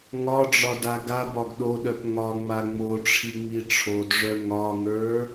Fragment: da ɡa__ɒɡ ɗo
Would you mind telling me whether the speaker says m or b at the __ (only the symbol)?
b